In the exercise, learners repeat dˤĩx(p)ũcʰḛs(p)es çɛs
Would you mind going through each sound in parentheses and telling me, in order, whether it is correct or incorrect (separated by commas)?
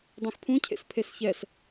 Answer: incorrect, incorrect